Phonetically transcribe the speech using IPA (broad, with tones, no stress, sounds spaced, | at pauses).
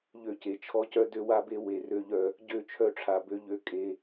ʎ ø˦˨ c e˨ t͡ʃʰ ɔ˦ c œ˦ d ø˦ w a˦ b e˦ w e˨ r ø˦ ʎ œ˦ | ɟ ø˦˨ t͡ʃʰ œ˦˨ ʈ͡ʂʰ a˨ b ø˦ ʎ ø˦ kʼ e˦